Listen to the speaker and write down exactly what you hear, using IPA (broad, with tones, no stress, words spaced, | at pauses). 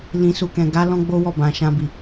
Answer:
lĩ˧su˧ kɛ̃˨ɡa˨˦ lɔ̃˦ɡ͡bo˦wɔ˦˨bã˨ ʃã˧ bi˨